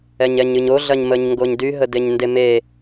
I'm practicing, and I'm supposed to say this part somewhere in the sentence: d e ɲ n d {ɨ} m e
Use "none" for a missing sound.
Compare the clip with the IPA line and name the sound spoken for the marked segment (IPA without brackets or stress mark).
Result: e